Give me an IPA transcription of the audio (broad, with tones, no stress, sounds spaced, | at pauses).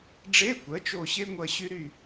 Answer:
ɖ͡ʐ e˧˥˧ kʷ ɜ˩˥ t͡ʃ o˦˨ ɕ e˥ ŋʷ ɐ˦˨ ɕ y˥ ɾ y˦˨